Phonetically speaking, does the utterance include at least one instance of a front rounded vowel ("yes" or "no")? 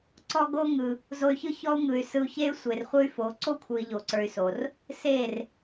yes